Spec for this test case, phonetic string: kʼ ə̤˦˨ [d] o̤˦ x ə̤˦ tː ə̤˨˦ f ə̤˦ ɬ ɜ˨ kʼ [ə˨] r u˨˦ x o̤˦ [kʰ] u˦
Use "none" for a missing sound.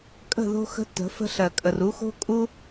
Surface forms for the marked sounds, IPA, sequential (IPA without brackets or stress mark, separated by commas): ð, ə˨, kʼ